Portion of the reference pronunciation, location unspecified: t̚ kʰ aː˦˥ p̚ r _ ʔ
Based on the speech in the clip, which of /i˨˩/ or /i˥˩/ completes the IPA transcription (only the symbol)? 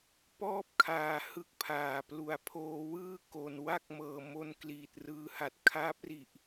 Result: i˨˩